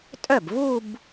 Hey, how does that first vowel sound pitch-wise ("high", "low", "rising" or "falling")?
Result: falling